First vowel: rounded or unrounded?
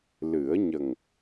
unrounded